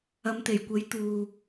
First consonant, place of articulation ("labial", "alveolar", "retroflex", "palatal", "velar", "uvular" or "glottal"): labial